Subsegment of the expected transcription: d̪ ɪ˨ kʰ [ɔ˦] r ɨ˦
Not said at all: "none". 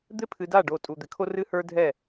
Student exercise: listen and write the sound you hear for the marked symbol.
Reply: o˦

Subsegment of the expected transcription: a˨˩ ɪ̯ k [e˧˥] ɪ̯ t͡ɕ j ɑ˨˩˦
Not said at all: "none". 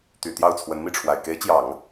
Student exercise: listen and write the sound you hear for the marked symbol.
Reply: e˧˥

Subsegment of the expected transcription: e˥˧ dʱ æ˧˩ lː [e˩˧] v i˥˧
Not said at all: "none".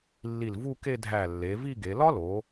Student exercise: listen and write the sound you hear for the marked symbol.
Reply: e˩˧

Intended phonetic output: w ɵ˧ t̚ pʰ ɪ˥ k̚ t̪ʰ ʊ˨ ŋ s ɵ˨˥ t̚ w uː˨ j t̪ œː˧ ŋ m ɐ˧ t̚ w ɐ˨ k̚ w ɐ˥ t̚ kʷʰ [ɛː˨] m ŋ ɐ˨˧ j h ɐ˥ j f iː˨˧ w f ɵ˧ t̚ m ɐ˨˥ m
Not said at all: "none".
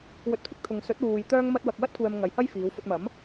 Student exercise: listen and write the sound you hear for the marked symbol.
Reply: ɛː˨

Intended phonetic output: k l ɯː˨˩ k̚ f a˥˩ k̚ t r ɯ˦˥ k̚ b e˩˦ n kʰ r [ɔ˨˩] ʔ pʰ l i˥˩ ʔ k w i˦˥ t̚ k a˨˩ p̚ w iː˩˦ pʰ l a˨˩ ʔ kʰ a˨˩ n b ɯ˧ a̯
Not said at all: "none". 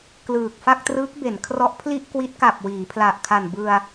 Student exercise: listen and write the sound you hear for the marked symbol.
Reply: ɔ˦˥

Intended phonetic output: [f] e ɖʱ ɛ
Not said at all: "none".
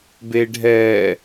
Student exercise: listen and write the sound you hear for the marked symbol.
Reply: b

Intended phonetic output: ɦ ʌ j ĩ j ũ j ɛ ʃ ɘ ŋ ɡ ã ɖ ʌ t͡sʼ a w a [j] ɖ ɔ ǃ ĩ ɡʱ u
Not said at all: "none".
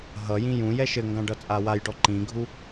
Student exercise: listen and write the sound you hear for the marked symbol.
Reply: j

